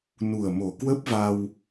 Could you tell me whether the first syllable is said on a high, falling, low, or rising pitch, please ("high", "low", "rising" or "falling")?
low